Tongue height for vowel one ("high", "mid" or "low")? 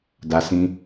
low